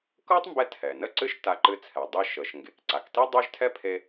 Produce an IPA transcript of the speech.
k ɤ˥ tˤ m b ɛ˧ tʰ ɛ˩ n ə˥ ǀ ɨ˥ ʃ t a˧ ǃ ɨ˧ t͡sʰ ɛ˩ dˤ i˧ ʃ ɤ˩ ʃ ŋ ɡ e˩ k ǀ a˩ k t i˥ dˤ ø˥ ʒ tʰ ɛ˥ pʰ e˧

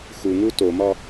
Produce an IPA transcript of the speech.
x u ŋ u t o m ɒ

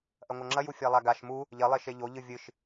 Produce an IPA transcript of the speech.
ʔ ɐ ŋʷ ɐ ŋ͡ǁ ɐ j u fʲ a lˠ a ɡ a ʃ m u | ʎ ɐ lˠ e ʃ e ʎ o ʎ ɨ vʲ ɨ ʃ

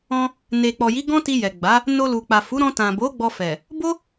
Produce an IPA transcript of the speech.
ɔ̃˧ | n e˨ k͡p ɔ˨ j i˨˦ ɡ ɔ̃˦ t i˧ j ɛ˨ ɡ͡b a˨˦ | n o˧ l u˨ k͡p a˨ f u˨˦ ɾ ɔ̃˧ t ã˨ b o˨˦ ɡ͡b ɔ˧ f ɛ˨ | b o˦

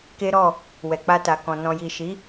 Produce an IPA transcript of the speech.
k e˦ ɾ ɔ˦˨ | w ɛ˨ k͡p a˧ t a˨ k ɔ̃˨ n ɔ̃˨ j i˨ ʃ i˨˦

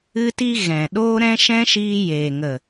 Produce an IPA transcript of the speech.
ɨ˧ t i˧ ɣ ɛ̃˨ ɗ oː˦ ɾ ɛ̃˦ ʃ ɛ̃˦ ʃ iː˧ j eː˨ ŋ ə˨

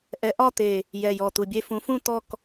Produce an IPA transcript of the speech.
ʔ ɛ˨˦ ʔ ɒ˦˨ t̪ e˨˩ | j ɛ˨˩ j ɔ˨˩ t̪ u˨˩ bʲ e˦˨ f ũ˨˦ f ũ˦˨ t̪ ɔ˦˨ k

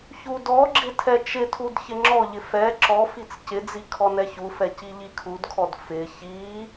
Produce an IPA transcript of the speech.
ç u d ɔ ɡ͡ǁ ɪ tʰ ɛ t͡ʃ ɪ tʰ u d ç ɪ ŋ͡ǁ ɔ ʎ ɪ f ɛ ǁ ɔ f i t͡s c ɪ d͡z i kʰ ɔ n ɛ ç u f ɛ c i ʎ i kʰ u d kʰ ɔ d f ɪ ç i

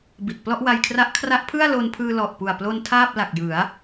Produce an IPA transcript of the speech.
b i˨˩ t̚ p l ɔ˥˩ ʔ w a˧ j kʰ r a˦˥ ʔ kʰ r a˦˥ ʔ pʰ ɯ˥˩ a̯ l o˧ n pʰ ɯː˧ l ɔ˨˩ ʔ p u˨˩ a̯ p l o˧ n tʰ aː˥˩ p̚ l a˨˩ k̚ j ɯ˩˦ a̯

